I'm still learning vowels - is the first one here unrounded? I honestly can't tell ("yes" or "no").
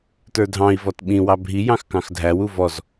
yes